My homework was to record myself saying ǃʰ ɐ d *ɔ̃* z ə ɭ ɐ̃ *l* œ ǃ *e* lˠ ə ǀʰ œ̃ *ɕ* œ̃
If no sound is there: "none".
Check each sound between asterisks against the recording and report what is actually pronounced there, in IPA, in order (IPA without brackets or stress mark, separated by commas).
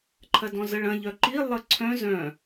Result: ɔ̃, ʎ, i, z